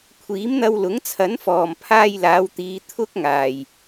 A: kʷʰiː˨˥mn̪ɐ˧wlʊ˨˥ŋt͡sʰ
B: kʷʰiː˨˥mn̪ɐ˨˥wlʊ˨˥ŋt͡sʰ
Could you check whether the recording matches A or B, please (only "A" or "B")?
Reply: A